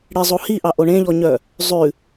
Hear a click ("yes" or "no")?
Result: no